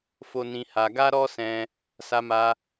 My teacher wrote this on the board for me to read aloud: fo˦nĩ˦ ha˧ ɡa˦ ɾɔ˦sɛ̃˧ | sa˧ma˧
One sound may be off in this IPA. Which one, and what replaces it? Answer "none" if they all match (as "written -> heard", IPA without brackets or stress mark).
none